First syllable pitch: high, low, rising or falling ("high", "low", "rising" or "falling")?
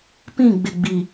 falling